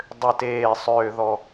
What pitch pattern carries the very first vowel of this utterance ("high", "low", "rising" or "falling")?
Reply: low